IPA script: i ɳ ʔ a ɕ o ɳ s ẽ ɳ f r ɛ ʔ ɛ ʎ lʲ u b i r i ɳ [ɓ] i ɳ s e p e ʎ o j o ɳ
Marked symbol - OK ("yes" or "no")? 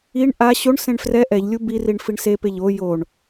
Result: no